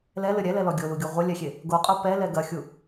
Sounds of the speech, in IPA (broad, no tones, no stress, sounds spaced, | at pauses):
l ɛ l ɘ ɾʲ ɛ l ɛ l ɔ ɡʲ o l u ɡʲ o ʁʷ ɛ lʲ ɛ xʲ e | ɡ o qʼ o p ɛ l ɛ ɡ ɐ xʲ u